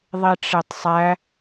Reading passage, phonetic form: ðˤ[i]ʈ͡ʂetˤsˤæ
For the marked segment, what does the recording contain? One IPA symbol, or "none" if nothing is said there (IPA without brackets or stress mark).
i